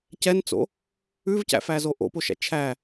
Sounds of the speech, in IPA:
cɛnt͡so̰ | ʉvcæ̰fæzo ʔo̰poʃæ̰ t͡ʃʰæ

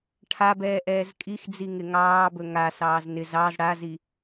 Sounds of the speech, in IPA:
ʈʰabɛː ʔɛːzkʼixd͡zi ŋɪŋɑːbɵ ŋasɑːz nɪz ɑz ɽazi

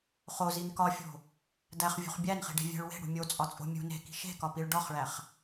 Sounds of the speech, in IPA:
χozin kɒfʲo̤ | dæχvʲṳχ bʲænχi̤ɖe̤vʲæ̤ɭ we̤ɽṳ mʲot͡sʼɒt͡sʼo̤ mʲṳ ne̤ki̤ ʃe̤kɒpiɭ ɖɒχɭæχ

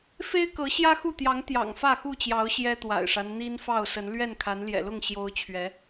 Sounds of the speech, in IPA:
fe˦ɪ̯kɤ˨˦ ɕjä˦xu˥˨t̪jɑ˨˦ŋ t̪jɑ̰˨˩ŋfä˥˨xu˥˨t͡ɕjɑ˨˦ʊ̯ ɕjɛ˦t̪wa̰˨˩ɪ̯ʂa˦n n̪i˦n fɑ˥˨ʊ̯sə˨˦n lɥɛ˥˨nkʰa˨˦n ljɛ̰˨˩lʊ˥˨ŋ ɕjo˦ʊ̯t͡ɕʰɥɛ˨˦

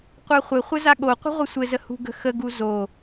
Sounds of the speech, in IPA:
qʷaχʷɘχʷɘ zaɠoqʷə̤ ʁʷɘsʷɘzə hṳɡə̤xəɡu zo

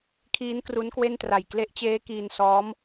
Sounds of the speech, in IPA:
kʰiː˦˥n kru˦˥nkwe˥˩ntra˨˩j kle˦˥ʔt͡ɕeː˦˥ kiː˧n sɔː˦˥m

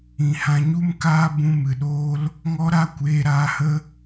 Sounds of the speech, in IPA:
ĩ˨hã˧ɲu˦m kaː˦ bũ˧mɨ˨ɗoː˦l | ŋɔ˦ɾa˦kʷeː˧ ɾaː˧hə˦

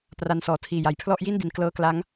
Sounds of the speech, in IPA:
pra˧nsɔː˨˩tʰiː˨˩ja˨˩j pʰlɔ˥˩ʔji˥˩ndi˩˦n klɤː˦˥kla˦˥ŋ

